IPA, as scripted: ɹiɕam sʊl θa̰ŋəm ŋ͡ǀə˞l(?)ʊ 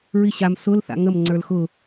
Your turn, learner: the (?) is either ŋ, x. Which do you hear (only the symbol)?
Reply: x